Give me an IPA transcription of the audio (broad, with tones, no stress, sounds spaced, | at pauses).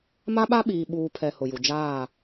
m a˦ ɓ a˦ ɓ iː˨ ɓ uː˨ pʰ ɛ˨ h ʊ˨ j u˨ d͡ʒ aː˦˨